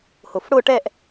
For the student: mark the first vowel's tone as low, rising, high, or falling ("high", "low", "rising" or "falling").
low